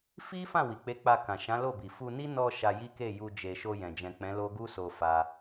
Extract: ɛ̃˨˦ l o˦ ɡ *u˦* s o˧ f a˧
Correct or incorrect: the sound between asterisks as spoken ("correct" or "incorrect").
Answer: correct